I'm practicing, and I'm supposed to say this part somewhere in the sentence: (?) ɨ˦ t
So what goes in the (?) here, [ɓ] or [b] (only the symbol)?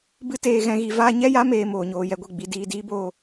b